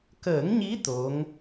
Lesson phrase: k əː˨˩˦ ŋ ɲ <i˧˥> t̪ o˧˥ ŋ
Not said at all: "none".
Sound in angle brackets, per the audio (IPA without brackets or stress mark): i˧˥